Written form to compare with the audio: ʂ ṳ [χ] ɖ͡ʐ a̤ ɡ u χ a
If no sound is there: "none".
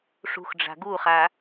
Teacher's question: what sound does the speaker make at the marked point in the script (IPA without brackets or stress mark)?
x